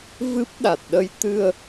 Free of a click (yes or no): yes